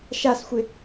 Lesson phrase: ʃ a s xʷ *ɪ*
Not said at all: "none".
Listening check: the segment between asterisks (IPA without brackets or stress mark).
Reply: ɪ